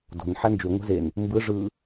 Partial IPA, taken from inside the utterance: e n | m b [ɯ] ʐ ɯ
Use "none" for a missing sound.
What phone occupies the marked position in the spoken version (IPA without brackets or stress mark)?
ɯ